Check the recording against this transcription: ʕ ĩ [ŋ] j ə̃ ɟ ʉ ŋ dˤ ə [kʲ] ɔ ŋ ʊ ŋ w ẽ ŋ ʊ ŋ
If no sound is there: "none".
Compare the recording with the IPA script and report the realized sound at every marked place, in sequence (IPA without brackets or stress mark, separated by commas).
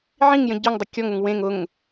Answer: ŋ, kʲ